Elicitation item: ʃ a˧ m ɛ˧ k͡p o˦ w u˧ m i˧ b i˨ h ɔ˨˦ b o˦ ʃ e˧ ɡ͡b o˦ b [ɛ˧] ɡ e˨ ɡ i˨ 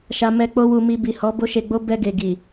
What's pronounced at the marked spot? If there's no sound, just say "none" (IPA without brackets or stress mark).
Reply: ɛ˧